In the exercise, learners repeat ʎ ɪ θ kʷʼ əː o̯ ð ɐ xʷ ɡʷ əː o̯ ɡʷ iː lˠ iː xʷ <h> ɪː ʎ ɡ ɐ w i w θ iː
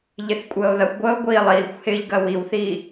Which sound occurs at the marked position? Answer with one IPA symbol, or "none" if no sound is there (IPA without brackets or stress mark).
h